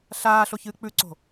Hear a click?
yes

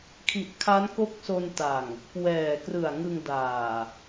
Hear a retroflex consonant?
no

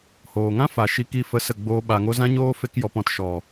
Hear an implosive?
yes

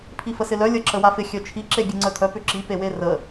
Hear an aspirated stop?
yes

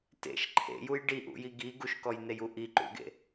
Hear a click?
yes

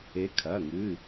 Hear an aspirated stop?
yes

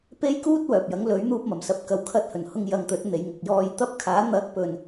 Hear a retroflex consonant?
no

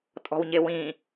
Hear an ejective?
yes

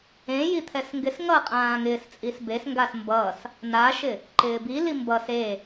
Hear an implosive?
no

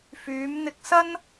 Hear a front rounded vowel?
yes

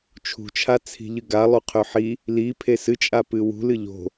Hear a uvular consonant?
yes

